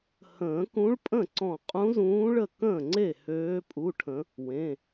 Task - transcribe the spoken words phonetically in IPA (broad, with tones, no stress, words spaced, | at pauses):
hə̃ː˨˩˦kũ˧˥ɭpʼə̃˥˩ǀɔ̃˧˩ qʼũ˧˥zũː˧˥ɭə˥˩ kə̃ː˥˩ŋ͡ǀe˥˩ høː˧˥pʼu˧˥˧ʈʰə̃˧˥ | wẽ˩˧˩